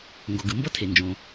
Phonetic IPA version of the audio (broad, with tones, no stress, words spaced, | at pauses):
ŋɡo˩ɡɯ˩ mbʌ˥tʰe˩nd͡ʒõ˩